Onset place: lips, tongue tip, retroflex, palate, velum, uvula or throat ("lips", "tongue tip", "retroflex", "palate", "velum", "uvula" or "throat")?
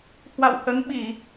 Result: throat